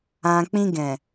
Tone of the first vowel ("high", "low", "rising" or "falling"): low